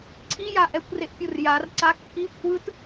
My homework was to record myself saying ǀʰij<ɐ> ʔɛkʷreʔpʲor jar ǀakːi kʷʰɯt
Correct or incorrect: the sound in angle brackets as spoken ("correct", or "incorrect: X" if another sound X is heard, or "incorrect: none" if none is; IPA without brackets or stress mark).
incorrect: a